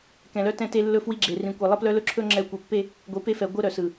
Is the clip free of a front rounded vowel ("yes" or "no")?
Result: no